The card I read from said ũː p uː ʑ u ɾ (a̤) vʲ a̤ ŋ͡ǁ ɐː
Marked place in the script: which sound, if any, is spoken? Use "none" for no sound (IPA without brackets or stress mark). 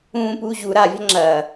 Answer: a